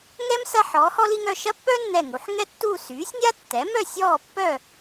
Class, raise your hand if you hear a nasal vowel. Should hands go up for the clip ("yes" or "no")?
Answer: no